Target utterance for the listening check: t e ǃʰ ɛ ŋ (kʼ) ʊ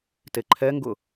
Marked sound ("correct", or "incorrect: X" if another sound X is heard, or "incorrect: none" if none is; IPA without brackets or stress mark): incorrect: ɡ